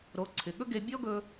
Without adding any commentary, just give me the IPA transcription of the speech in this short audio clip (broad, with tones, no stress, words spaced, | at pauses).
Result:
ɾo˩˧ǀʰɪ˩ɠɵ˥ɡe˧ bʲɔ˥ɡɵ˧